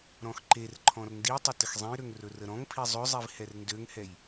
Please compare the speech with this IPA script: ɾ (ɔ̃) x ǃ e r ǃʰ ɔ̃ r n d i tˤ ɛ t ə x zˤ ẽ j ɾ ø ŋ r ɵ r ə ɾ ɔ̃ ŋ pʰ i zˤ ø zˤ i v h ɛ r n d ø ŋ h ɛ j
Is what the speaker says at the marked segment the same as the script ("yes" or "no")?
yes